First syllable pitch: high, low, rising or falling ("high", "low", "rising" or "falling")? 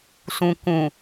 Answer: low